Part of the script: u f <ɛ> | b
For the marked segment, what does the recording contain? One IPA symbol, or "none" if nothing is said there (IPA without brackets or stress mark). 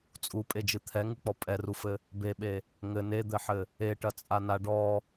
ɘ